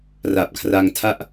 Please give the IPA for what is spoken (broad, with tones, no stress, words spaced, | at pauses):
ra˨˩p̚kʰra˧ŋ tʰa˥˩ʔ